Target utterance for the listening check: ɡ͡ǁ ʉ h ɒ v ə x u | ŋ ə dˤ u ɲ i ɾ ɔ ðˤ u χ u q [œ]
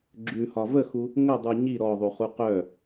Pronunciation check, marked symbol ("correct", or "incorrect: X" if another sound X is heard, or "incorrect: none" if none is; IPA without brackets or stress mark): correct